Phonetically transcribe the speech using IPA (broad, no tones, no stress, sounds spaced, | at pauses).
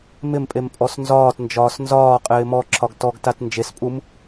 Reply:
m ɪ m pʼ e m pʼ ɔ s n z ɒː t n d͡ʒ ɒː s n z ɒː qʼ ɪː m ɔ ǁʰ ɒ ɡ t ɔ ɡ t a t n d͡ʒ e s pʼ u m